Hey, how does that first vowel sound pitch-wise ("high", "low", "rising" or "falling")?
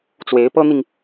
rising